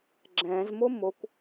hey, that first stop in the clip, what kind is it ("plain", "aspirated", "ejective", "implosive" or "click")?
click